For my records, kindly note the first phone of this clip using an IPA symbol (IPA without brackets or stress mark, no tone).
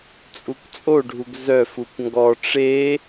t͡sʼ